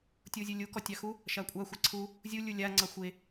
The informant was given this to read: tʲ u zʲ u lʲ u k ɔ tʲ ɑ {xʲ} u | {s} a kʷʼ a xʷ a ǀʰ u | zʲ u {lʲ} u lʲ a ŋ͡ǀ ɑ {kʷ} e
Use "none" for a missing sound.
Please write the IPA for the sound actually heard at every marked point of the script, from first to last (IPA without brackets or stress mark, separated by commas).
x, ʃ, lʲ, xʷ